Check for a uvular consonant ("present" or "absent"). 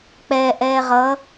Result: present